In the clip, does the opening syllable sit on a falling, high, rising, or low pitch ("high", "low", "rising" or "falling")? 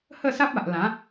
falling